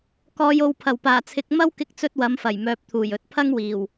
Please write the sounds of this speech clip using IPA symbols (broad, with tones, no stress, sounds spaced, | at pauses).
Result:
k ɔː˨ j o˨ w pʰ ɐ˨˩ w p aː˨˩ t͡sʰ ɪ˨˥ k̚ m ɐ˥ w k ɪ˧ k̚ t͡s ɵ˧ t̚ w ɐ˨˥ m f ɐ˨˩ j m œː˨ p̚ t̪ʰ uː˨˩ j ɵ˨ t̚ pʰ ɐ˥ ŋ w iː˨˩ w